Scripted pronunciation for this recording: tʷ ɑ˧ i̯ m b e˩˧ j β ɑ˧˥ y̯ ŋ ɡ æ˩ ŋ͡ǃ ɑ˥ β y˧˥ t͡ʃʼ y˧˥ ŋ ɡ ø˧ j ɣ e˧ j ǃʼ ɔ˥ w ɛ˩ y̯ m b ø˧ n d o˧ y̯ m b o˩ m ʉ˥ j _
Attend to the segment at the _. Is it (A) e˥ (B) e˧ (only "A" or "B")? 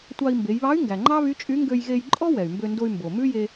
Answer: B